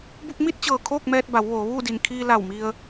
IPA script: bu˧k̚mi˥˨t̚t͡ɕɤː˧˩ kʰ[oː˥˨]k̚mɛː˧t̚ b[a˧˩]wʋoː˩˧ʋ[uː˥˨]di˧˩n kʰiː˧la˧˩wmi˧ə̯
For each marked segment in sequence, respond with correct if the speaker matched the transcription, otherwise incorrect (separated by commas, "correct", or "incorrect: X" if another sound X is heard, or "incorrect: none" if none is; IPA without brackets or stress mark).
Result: correct, incorrect: a˩˧, correct